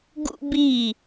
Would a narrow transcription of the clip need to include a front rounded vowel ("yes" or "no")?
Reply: no